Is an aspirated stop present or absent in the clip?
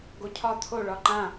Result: present